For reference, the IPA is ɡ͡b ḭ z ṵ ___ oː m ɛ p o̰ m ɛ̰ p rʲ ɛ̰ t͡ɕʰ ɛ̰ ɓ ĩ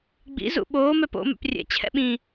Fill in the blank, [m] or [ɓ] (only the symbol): ɓ